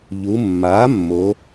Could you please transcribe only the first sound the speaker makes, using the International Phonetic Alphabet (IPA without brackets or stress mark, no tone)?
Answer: ʎ